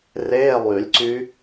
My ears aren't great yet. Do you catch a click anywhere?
yes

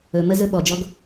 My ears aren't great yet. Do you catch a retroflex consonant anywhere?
no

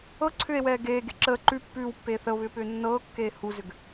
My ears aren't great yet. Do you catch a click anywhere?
yes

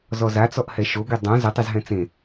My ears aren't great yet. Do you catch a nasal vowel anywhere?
yes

